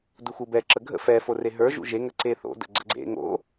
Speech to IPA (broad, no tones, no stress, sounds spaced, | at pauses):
d u x u b ɛ ǁ ə ɡʱ ə̰ f ɛ f o r e ɦ ə˞ ʒ ṵ ʒ e ŋ ə ǀ e θ o̰ d ə̰ ɡ͡ǀ ə̰ ɡ͡ǀ ḛ ŋ o̰